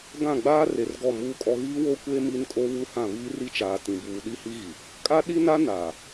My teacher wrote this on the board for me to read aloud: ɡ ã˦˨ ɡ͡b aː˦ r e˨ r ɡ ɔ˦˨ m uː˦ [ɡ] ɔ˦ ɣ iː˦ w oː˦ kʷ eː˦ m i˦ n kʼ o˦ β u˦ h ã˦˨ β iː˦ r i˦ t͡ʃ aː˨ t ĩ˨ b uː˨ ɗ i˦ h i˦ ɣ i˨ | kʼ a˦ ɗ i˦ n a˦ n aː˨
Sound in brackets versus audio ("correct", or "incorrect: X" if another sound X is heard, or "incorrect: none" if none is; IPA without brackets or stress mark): incorrect: kʼ